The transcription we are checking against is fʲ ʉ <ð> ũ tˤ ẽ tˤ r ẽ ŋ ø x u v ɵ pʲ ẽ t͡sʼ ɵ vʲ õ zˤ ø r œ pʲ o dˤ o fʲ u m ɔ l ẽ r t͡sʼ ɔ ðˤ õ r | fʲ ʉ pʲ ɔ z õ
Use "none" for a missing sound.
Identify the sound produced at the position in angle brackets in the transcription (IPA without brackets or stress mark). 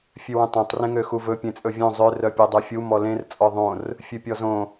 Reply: w